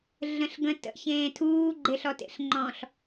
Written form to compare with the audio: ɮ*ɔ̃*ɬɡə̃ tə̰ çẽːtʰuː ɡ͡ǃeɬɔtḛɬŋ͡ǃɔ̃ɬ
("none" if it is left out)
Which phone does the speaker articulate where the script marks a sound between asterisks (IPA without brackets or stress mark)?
ə̃